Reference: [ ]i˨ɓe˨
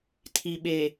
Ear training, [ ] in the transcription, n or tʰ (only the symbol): tʰ